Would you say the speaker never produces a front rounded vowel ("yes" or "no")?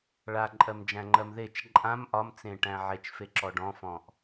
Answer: yes